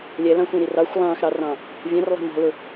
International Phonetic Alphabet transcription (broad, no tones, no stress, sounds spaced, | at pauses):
lʲ ɛ l ɑ̃ xʷ ɛ̃ ɾ i r ɑ xʷ lˠ ɑ̃ː x ɾ ɑ r ɑ̃ː | vʲ æ̃ r lˠ æ̤ m ɔ̤ l ʊ